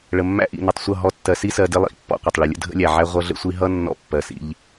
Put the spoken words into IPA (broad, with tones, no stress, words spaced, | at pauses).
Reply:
ɭə˨mːæ̰˦ ʔḭ˨nə˨tˤsʷʌ˦˨ ɦɔ˦ tːɜ˨si˦sɜ˨ dɪ˦ lˠḭ˨ʔpːɔ̰˦qʷɪ˨tˤ ɭɪ˨lʲə̰˦ dʱə̰˦lʲæ˨ʕæ˦ ʁʷʌ˦ɮə̰˦sʷi˦ ɦʌ˦ nːɔ̰˦pːɜ˨sḭ˦ʎ